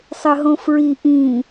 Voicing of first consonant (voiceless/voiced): voiceless